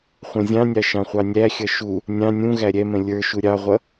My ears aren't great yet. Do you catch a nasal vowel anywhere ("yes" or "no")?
yes